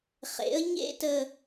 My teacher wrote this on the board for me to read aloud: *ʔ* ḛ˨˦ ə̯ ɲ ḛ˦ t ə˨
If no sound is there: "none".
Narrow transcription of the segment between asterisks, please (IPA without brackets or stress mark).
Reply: χ